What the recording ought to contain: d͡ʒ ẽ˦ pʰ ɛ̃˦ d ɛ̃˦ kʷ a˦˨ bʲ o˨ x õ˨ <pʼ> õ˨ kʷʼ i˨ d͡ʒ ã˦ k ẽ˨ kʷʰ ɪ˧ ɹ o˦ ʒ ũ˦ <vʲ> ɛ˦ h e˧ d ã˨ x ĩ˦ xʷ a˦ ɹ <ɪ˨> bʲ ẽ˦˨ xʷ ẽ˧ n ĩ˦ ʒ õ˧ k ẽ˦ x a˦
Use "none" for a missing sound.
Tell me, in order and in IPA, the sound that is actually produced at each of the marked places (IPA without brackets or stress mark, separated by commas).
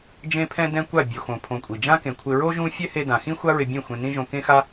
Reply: pʰ, fʲ, ɪ˧